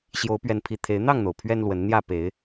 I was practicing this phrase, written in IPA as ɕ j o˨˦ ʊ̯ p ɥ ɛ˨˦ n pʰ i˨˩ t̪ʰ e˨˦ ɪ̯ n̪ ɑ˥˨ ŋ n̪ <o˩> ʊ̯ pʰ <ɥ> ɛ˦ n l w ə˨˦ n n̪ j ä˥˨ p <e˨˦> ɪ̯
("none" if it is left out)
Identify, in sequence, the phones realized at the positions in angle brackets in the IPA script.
o˩, ɥ, e˨˦

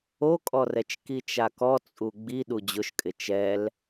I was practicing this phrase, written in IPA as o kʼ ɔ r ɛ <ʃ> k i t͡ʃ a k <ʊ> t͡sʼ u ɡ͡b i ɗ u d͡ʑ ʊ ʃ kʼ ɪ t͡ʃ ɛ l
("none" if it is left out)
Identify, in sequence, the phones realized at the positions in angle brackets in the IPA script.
t͡ʃ, ɔ

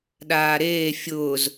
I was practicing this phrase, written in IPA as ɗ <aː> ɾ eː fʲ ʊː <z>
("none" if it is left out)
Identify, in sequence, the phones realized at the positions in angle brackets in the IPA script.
aː, z

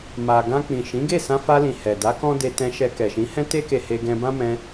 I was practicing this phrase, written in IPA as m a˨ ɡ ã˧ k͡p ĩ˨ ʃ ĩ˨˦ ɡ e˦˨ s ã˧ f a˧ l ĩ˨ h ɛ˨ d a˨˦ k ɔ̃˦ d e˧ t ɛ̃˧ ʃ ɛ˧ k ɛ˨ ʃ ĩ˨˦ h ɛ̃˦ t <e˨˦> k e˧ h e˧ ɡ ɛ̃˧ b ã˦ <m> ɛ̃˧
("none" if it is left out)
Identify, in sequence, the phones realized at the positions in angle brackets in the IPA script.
e˦, m

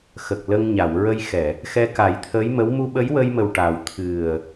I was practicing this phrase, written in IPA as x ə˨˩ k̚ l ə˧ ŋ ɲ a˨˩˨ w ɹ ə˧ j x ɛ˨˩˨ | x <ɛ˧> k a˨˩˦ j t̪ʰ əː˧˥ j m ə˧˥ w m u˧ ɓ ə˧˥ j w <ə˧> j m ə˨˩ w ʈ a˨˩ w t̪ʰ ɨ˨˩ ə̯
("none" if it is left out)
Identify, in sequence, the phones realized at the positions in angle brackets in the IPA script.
ɛ˧, ə˧

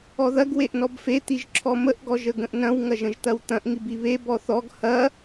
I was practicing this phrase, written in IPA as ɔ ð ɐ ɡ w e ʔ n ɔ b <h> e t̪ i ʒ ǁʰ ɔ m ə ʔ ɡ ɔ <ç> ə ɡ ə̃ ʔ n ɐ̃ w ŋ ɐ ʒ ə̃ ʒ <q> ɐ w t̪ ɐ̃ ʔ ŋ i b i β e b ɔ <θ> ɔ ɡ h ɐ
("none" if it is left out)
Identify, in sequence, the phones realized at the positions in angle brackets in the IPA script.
f, ʒ, t̪, θ

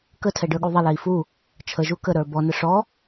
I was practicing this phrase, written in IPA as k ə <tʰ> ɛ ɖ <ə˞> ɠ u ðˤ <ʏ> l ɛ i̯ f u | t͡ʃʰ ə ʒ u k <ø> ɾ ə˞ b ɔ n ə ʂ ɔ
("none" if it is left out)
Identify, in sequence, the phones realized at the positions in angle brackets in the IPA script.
tʰ, ə˞, ə, ə

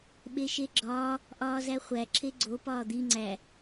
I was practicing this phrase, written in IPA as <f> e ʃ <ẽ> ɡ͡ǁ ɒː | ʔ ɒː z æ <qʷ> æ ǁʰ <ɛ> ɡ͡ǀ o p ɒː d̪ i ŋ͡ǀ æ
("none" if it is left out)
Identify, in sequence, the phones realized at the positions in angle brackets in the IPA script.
ɓ, e, χʷ, e

